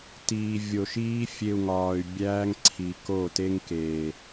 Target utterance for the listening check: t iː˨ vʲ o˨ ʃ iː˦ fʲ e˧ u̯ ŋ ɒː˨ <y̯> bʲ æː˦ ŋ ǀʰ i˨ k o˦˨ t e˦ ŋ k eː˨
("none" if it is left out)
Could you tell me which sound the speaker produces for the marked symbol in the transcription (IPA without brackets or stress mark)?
y̯